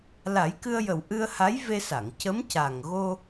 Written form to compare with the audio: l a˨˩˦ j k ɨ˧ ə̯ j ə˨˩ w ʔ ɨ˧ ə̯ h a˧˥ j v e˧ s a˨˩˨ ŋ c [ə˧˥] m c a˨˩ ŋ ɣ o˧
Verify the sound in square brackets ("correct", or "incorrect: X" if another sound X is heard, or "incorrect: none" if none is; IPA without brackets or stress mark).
correct